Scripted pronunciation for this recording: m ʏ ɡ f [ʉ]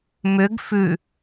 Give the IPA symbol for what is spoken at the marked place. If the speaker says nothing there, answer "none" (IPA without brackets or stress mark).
ʉ